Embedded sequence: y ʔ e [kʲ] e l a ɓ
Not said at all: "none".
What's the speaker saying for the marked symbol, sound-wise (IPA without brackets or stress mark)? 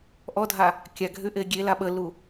ɡʲ